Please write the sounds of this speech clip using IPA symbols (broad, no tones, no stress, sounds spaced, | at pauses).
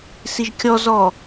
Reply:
s i ʒ kʲ ɔ z ɔ